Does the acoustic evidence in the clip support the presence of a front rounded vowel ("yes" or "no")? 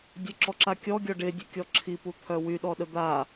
yes